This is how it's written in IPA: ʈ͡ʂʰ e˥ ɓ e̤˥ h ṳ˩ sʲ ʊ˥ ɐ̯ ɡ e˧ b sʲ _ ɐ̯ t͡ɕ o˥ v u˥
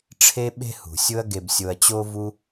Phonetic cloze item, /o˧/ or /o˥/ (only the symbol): o˧